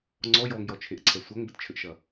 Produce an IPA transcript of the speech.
ŋ͡ǀ ɔ j ɔ ŋ j ɔ t͡ʃʰ e ʔ ǀʰ ɛ sʷ ɐ ŋ b ə t t͡ʃʰ ɘ ʔ ʃ ɐ

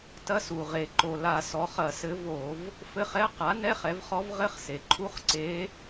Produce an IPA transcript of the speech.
t ɐ˧˥˧ s u˩ ʁ e˩ ǃ o˩ l a˧˩˧ s ɔ˩˥ χ ɐ˧˩˧ s ɘ˧˥ v o˧˩˧ v | f ɘ˧˥˧ χ ɛ˧˥˧ q a˩˥ n ɛ˧˥˧ χ ɛ˩˥ v χ ɔ˧˥ v ʁ ɘ˧˥˧ χ s e˩ ǃʰ u˧˥˧ χ ǀ e˧˥

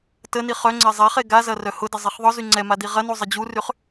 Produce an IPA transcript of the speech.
t ə n i χ œ ŋ͡ǀ ɛ zˤ ɛ χ e ɡ a z ɐ r œ h ʊ d ə zˤ i χ ðˤ ʊ z y ŋ͡ǀ ɛ m a d i ʁ ɐ n u zˤ ə d͡ʑ u r y χ

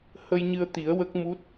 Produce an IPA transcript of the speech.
h ə˧ j ɲ ɨ˧ ə̯ t̪ i˨˩˦ ə̯ w ə˦˥ k̚ m u˦˥ t̚

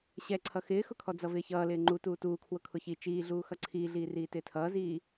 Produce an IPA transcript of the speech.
ɕ ɛ ǀʰ ʌ x ɪː x ʊ kʰ ɔ d͡z ʌ v ɪː ç ʌː l ɪː ŋ͡ǃ u t uː t uː kʰ w ʊ kʰ ʊ ç i t͡ʃ iː ɮ uː x ʌ ǀʰ iː ɮ iː r iː t ɪː tʰ ʌː z iː

